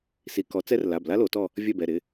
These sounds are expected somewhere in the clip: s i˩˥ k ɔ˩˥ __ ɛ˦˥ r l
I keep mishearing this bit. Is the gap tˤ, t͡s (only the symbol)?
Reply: t͡s